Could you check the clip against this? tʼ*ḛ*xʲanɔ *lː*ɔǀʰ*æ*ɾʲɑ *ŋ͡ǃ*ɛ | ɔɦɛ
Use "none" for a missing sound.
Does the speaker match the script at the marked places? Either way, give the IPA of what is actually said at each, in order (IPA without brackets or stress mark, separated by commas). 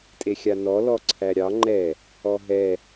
e, l, æ, ŋ͡ǃ